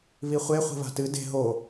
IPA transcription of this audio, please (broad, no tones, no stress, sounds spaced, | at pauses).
β i χʷ e χʷ i̤ β a̤ t ɨ d e̤ ɦ o